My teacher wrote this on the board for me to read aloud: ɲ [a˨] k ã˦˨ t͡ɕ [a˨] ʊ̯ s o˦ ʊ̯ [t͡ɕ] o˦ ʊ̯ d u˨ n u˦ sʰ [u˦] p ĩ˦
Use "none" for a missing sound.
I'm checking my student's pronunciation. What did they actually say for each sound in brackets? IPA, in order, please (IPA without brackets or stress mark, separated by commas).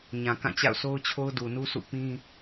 ã˨, a̰˦˨, t͡ɕʰ, ṵ˦˨